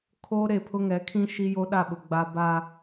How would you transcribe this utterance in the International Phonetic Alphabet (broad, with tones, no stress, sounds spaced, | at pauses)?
kʰ o˦ ɾ e˦˨ pʰ ʊ˦ ŋ ɛ˨˦ kʰ ĩ˦ ʃ i˦ j o˦ ɗ a˦˨ ɓ ʊ˨ ɡ͡b a˨ b a˨